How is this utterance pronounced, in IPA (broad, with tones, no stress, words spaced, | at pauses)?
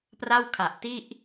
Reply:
pra˥˩wkʰa˨˩ʔti˥˩ʔ